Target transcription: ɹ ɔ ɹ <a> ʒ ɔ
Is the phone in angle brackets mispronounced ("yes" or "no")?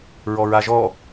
no